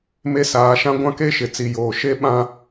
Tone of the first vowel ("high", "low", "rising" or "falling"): high